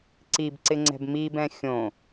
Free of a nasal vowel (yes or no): no